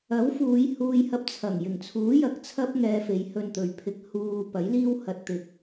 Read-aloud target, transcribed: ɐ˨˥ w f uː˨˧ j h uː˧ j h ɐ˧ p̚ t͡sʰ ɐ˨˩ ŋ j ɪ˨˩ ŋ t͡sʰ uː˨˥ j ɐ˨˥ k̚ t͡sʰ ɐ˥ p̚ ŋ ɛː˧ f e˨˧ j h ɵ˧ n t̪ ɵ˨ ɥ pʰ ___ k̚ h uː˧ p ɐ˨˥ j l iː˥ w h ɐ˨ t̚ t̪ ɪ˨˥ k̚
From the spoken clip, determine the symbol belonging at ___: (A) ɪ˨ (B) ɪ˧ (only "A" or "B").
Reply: B